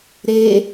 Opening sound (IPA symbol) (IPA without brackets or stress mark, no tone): ɾ